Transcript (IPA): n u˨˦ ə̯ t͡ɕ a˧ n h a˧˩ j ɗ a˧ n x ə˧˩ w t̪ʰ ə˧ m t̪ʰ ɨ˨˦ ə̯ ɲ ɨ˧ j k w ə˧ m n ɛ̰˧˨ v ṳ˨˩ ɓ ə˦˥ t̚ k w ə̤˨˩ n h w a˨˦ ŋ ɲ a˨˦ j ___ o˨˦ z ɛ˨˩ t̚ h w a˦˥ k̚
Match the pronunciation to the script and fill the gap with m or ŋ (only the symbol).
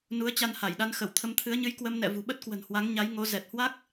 ŋ